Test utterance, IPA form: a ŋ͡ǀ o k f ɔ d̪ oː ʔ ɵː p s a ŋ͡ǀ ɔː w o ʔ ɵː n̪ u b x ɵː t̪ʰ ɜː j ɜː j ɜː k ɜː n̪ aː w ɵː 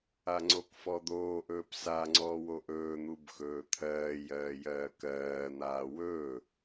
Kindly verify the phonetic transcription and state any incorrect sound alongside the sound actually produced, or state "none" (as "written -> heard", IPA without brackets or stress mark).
none